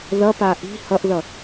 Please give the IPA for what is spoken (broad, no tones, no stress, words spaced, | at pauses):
ðʌpa ʔi̤ hʌʔðʌ